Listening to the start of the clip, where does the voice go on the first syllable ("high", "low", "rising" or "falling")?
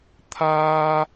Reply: high